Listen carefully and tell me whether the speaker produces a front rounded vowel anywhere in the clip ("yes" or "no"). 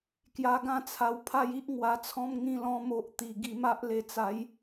no